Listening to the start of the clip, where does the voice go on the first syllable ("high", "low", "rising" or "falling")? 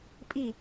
falling